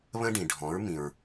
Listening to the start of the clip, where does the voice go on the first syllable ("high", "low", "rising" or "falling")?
high